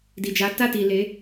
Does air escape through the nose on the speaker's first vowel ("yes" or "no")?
no